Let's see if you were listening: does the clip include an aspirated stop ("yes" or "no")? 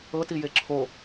yes